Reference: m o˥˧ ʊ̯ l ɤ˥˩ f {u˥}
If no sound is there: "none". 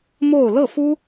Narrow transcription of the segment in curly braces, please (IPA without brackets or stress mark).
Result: u˥